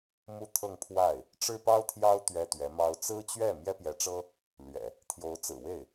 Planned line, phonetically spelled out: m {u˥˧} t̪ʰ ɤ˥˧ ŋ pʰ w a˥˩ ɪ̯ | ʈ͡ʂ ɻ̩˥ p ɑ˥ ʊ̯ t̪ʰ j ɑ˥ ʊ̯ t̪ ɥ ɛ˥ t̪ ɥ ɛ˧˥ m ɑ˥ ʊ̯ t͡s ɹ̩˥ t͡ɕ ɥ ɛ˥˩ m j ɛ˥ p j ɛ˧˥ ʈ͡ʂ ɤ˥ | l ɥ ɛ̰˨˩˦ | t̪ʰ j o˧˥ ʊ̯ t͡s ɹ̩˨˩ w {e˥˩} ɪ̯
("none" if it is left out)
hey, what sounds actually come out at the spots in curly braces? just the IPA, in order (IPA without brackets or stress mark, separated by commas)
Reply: u˥˧, e˥˩